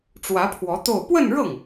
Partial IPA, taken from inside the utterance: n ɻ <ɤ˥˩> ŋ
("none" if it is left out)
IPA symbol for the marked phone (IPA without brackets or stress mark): ɤ˥˩